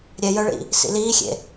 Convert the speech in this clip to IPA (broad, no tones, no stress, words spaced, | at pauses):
ɾʲɛjœɭḭ | sḭliːxʲḛ